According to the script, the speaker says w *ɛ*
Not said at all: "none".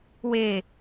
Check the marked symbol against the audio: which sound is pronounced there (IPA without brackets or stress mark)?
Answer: e